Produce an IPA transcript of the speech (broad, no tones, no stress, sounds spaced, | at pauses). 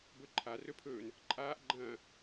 b ɵ ǃʰ a r ɵ pʰ ɵː n | ǃʼ aː ʔ ɡ͡ǃ ɐ̃ː